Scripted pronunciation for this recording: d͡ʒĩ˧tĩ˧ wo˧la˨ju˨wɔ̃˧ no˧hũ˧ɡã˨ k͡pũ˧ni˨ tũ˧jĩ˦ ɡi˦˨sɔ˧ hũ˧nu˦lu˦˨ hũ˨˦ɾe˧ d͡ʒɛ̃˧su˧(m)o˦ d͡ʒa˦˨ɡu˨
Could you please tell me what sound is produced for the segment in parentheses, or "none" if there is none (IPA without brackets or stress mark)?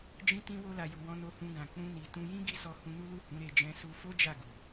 f